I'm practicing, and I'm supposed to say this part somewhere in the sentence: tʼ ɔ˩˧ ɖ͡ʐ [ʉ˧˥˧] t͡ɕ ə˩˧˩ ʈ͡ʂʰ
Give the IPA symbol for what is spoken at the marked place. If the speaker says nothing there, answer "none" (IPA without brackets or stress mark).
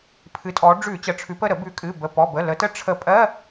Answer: ʉ˧˩˧